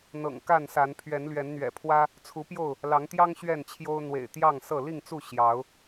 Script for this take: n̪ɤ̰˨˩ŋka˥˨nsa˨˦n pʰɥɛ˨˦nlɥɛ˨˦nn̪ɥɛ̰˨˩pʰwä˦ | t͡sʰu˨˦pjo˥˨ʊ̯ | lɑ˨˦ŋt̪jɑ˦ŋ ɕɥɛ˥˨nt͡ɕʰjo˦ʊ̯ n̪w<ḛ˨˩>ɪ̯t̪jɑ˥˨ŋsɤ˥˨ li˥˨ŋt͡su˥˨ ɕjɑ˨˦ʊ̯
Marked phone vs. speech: correct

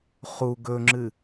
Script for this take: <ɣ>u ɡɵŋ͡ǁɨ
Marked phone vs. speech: incorrect: χ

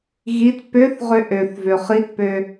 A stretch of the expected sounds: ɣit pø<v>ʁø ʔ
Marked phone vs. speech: incorrect: θ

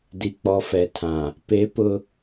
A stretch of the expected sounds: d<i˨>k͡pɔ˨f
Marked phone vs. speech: correct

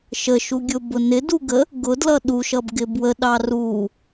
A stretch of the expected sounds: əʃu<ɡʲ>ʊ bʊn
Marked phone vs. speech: correct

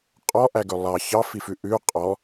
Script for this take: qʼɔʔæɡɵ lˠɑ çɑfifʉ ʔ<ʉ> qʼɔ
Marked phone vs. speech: correct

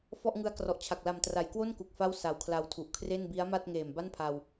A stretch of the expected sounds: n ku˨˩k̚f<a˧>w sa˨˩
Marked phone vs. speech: incorrect: a˥˩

